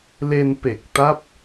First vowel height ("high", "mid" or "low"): mid